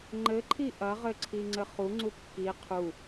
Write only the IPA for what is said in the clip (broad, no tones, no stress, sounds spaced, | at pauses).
ŋ͡ǃ ɘ ǃʰ i ʔ ɐ ʁ ɘ ǀʰ i ŋ͡ǀ ɘ χ u ŋ͡ǀ u kː i qʰ u